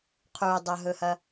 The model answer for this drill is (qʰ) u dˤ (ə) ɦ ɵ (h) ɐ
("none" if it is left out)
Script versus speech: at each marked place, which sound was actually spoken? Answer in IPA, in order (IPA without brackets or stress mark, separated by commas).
qʰ, ɐ, h